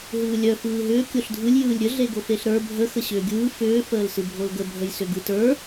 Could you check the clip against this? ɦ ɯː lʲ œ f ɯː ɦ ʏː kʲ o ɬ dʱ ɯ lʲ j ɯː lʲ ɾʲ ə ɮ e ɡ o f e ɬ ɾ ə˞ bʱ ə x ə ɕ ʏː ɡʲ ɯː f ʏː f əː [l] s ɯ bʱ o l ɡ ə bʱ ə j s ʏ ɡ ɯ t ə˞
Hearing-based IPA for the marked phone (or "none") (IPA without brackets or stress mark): l